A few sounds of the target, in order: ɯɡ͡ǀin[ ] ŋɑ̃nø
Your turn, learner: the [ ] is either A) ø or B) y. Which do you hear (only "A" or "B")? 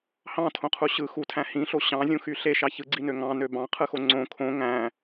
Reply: A